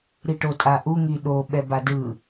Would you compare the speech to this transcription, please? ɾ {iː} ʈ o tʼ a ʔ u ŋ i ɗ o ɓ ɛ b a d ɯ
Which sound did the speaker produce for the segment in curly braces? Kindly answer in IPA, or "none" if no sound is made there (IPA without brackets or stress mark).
i